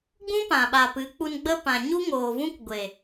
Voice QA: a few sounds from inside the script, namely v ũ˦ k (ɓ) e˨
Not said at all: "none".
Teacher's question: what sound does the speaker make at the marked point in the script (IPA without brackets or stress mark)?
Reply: ɡʷ